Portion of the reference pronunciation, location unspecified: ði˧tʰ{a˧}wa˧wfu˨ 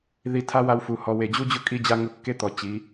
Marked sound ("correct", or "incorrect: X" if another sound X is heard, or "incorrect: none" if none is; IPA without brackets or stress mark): incorrect: a˦